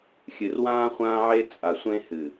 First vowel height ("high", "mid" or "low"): high